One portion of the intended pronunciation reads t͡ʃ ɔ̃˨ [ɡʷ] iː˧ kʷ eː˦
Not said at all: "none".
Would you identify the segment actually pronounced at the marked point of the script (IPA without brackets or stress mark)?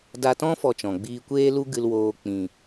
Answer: ɡ͡b